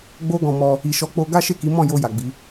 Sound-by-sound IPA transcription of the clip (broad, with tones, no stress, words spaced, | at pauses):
ɡ͡bo˦ɡɔ̃˧mɔ˧ | i˨ʃɔ˨˦k͡po˧ ɡa˦ʃe˦˨ ki˨˦mɔ̃˦˨ jo˧ja˨ɡ͡bi˨˦